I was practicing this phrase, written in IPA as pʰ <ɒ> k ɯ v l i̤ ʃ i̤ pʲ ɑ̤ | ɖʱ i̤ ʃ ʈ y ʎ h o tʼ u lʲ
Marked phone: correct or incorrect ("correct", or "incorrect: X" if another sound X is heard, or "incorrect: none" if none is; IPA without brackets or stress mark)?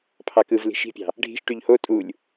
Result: incorrect: ɑ